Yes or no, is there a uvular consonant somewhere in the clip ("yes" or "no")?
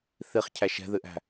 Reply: yes